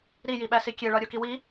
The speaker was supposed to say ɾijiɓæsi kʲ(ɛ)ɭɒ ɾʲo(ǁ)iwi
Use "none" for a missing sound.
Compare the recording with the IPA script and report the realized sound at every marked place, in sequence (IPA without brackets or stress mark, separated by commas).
e, k